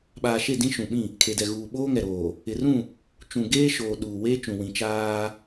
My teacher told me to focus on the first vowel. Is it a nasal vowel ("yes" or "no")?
no